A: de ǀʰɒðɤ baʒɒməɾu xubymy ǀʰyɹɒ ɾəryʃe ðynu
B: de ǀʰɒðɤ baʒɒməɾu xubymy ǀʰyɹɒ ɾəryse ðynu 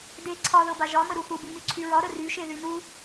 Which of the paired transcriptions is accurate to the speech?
A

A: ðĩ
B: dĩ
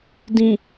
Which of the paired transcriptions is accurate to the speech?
B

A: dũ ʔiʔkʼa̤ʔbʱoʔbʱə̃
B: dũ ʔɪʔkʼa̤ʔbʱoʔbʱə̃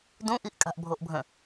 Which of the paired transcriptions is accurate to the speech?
A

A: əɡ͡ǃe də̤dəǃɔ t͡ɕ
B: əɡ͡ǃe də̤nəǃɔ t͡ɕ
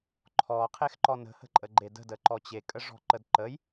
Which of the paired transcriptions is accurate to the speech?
A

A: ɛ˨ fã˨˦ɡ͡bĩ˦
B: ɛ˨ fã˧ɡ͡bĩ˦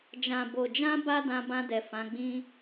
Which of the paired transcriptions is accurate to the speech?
A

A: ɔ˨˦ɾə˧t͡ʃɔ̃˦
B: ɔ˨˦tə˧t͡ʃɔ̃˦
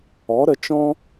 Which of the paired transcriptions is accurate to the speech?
A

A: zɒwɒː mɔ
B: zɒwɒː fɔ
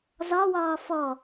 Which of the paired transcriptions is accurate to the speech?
B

